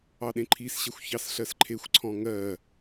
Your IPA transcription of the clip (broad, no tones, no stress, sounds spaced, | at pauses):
ɑ ɗ ẽ ǃʰ i s ɕ ɛ xʷ ç ɑ s ɬ ɜ s ǃʰ e xʷ ǀʰ ɔ̃ ŋ ɜ